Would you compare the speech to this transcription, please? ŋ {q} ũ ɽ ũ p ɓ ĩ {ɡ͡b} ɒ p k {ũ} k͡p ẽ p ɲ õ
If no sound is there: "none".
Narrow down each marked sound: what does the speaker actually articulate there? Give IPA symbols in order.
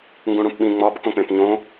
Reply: ɡ, ŋ͡m, õ

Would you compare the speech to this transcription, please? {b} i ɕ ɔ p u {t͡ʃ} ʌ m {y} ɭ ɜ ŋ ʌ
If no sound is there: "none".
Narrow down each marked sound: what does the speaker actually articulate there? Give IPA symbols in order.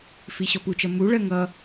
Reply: f, t͡ʃ, u

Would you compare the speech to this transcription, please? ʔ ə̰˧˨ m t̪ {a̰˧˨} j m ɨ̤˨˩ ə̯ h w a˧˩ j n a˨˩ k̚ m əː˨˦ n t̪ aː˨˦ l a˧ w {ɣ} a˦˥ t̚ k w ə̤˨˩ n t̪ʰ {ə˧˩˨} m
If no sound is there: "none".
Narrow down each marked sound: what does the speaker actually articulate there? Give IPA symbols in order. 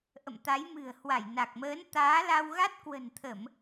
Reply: a˨˦, ɣ, ə˧˩˨

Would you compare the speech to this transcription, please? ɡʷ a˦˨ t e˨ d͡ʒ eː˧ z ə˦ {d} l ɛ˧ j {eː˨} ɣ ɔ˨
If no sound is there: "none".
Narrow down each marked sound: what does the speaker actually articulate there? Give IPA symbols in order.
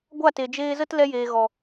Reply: t, eː˨

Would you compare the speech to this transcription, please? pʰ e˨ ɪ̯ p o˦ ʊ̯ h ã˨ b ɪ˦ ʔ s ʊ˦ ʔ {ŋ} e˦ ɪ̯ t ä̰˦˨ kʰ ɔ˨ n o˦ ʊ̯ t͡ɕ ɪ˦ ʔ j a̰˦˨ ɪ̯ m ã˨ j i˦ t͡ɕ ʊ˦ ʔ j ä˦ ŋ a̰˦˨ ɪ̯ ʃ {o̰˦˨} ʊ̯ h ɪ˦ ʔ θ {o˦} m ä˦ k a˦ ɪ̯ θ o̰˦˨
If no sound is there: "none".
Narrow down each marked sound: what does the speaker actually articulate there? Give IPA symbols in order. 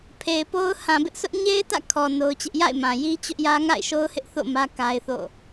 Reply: ɲ, o˦, o̰˦˨

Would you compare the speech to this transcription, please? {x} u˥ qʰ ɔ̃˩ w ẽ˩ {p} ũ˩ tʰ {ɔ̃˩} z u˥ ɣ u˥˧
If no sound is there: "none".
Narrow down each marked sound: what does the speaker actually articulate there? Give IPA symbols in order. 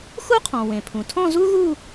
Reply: x, pʰ, ɔ̃˥˧

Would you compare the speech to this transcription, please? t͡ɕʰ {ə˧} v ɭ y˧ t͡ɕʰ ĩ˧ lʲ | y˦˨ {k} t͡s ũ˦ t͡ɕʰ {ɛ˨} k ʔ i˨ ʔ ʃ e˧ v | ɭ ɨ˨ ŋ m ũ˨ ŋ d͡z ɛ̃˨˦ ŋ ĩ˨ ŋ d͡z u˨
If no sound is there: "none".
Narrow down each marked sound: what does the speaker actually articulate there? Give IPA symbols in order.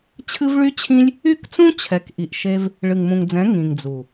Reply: ɨ˧, k, ɛ˨

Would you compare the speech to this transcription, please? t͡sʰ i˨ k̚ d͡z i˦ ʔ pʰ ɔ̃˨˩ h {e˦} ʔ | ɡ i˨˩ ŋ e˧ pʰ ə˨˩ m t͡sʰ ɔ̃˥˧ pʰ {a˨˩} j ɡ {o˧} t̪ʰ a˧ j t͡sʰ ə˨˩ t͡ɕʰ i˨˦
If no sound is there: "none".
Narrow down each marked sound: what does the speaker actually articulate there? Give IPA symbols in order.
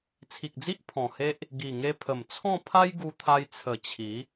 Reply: e˦, a˦, u˧

